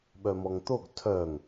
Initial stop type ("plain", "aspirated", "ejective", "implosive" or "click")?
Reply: implosive